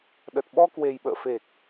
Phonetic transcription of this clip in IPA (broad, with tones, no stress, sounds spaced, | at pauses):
ɗ ə˨˩ t̚ ɓ ɔ˧ k w e˨˩ j ɓ ə̰ː˧˨ f e˨˩ k̚